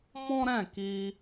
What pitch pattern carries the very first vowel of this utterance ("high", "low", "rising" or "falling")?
high